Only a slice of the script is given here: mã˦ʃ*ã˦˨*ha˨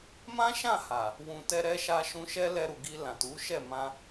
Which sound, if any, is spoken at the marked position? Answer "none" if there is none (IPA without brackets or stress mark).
ã˦˨